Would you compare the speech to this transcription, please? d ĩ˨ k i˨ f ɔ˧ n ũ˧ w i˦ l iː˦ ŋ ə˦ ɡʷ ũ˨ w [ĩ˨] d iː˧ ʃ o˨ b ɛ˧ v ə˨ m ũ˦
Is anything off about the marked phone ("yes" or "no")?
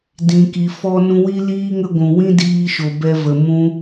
yes